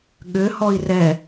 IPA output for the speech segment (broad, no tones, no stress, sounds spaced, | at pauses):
ɠ ʏ h ɔ i̯ r ɛ